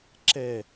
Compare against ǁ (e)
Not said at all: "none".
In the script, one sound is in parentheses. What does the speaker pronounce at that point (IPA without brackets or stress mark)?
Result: ɛ